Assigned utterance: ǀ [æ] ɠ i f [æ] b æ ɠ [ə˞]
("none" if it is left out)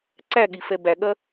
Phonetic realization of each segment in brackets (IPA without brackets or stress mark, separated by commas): æ, ɛ, ɐ